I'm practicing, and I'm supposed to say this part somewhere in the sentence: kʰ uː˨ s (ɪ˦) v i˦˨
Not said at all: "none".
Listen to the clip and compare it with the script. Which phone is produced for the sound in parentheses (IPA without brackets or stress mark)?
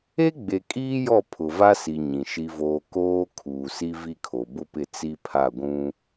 i˦